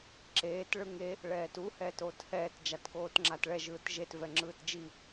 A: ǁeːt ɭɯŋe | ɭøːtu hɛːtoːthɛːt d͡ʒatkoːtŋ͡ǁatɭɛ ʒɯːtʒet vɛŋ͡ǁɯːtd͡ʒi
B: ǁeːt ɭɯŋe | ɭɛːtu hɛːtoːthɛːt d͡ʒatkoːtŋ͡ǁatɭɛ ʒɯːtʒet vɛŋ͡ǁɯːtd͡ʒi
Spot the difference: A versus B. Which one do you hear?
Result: B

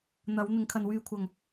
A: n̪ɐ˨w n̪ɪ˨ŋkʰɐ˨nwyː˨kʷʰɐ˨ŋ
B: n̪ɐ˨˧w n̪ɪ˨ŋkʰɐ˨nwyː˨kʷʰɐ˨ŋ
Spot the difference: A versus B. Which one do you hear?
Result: B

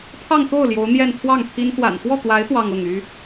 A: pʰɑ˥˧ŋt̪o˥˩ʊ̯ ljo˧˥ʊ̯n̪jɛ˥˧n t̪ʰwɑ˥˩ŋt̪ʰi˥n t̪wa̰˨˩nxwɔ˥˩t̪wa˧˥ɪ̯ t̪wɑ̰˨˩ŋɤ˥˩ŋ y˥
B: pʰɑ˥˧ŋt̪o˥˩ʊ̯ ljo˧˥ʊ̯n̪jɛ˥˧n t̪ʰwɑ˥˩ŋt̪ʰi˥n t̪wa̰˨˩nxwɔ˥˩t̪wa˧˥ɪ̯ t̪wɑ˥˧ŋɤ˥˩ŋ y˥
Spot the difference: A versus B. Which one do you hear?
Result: B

